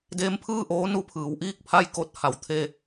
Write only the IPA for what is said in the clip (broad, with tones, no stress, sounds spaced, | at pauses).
d eː˧˥ m pʰ ɯː˥˨ ʔ oː˧˥ n u˧ pʰ ɯː˩˧ w ʔ iː˥˨ k̚ pʰ a˥˨ j k o˧˥ t̚ h a˩ w t̪ʰ e˥˨